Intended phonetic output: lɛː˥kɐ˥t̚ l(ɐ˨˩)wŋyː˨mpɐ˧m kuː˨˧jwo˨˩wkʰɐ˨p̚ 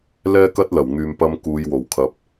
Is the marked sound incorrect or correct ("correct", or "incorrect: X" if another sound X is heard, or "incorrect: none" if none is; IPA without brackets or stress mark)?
correct